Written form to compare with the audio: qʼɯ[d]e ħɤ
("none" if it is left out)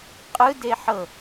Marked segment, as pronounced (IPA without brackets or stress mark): d